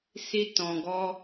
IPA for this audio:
si˦ tɔ̃˧ɡɔ˦

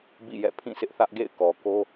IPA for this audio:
bḭ˦˨jɛ̰˦˨ pʰĩ˦˨sʰɪ˦ʔθä˦ʔɡḛ˦˨ɪ̯ kɔ˨ko˦

